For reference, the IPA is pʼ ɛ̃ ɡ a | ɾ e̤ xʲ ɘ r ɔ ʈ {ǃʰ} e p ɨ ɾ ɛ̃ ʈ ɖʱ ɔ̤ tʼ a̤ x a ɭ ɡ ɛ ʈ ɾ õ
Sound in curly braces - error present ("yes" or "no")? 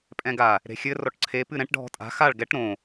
yes